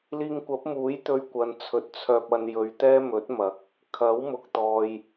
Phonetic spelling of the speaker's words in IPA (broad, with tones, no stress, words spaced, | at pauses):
liː˧ŋkʷɐ˨˥p̚muː˨˥j t̪ɵ˧ɥkʷɐ˨nt͡sʰɵ˨t̚ t͡sʰœː˨p̚ɐ˨n jɵ˨˧ɥt̪ɛː˥mɵ˨˥t̚mɐ˨˥k̚ | kʰɐ˨˥wmʊ˨k̚t̪ɔː˨j